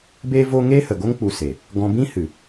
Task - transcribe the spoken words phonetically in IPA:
beː˦vo˦ ŋe˦hə˨ɡo˦ŋ k͡pu˧se˨ | ɡɔ̃˧bĩ˦hɨ˨

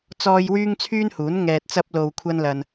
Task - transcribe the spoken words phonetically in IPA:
t͡sɔː˥j wyː˥ŋt͡sʰyː˥nhuː˨˥n ŋɛː˧t̚t͡sɐ˥p̚ lo˧wkʷʰɐ˥nlɐ˧n

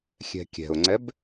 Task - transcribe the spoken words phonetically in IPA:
xʲɛ̤kʲɛ̤ʊ̯ŋ͡ǀɛb

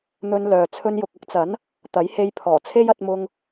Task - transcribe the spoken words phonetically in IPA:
n̪ɵ˧nlœː˨ t͡sʰɵ˧njʊ˨k̚ɐ˥k̚t͡sɐ˨˥n | t̪ɐ˨˥jhe˧jpʰɔː˨˩t͡sʰe˥j ɐ˧t̚mʊ˧ŋ

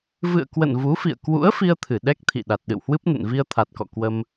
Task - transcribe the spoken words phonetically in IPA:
vɨ̰˧˨ə̯kwə̰˧˨n vu˨˦fḭ˧˨ə̯ kwṵ˧˥ə̯fi˧ə̯ t̪ʰɨ˧˩ ɗɛ˦˥k̚t̪ʰḭ˧˨ ɗa˨˩t̚ɗɨ̰˧˨whwɨ˦˥p̚ nə̰˧˨nvi˧ə̯ t̪ʰa˨˩t̚kɔ̰˧˨ kwə˧m

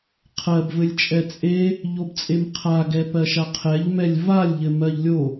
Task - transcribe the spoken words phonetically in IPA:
qʰɜbvɘlʲt͡ʃʼɛ t͡sʼe | ʎobt͡sʼemqʰaɡɛ pɜʃaqʰɛʎmɛlʲ valʲʎɘ mɜʎlʲo

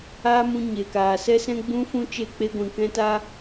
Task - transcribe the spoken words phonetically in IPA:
aː˦mũ˧ ɲe˨kaː˨ sɛ˦sɛ̃˦ɡ͡bũ˦fũ˦ t͡ʃe˦˨k͡pe˦ɡʷĩ˨ kɛ̃˦ta˦

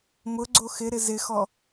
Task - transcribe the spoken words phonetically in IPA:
mʊ ɡ͡ǀoxɪɾɪ zɪxɔ

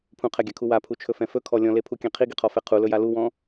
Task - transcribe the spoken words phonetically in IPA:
pʰũqʰɛɡʲakʰu wapʰut͡ʃʰɵfɛ̃ fɵkʰɔ lʲɔ̃lepʰukʲɛ̃ qʰiɡiqʰɔfɛ qʰulɵja luwɔ̃

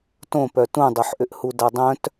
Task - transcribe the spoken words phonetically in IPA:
tõpœ tũdˤoħʔʏʔhu dadˤœ̃t

